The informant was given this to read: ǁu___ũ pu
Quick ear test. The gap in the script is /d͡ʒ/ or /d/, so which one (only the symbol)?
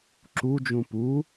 d͡ʒ